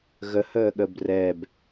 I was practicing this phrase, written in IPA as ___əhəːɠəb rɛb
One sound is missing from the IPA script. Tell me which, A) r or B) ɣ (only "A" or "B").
B